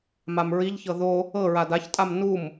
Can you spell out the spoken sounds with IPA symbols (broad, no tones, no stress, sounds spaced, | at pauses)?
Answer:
m a m ɹ i ʎ ç ɤ ð o | ɤ ɹ a d a ç tʼ a m n u m